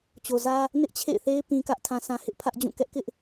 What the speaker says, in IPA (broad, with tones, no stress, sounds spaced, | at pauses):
t͡ɕ o˨ z ä˦ | n ɪ˦ ʔ t͡ɕʰ ḛ˦˨ ɪ̯ θ e˦ ɪ̯ p ĩ˦ k ä˦ ʔ tʰ ã˦ s ã˦ h ɪ˦ ʔ pʰ ä˦ ʔ d͡ʑ ũ˦˨ k ɛ˦ ʔ k ɪ˦ ʔ